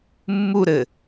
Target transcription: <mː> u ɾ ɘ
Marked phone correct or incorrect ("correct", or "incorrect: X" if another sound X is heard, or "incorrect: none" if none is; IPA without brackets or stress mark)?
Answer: correct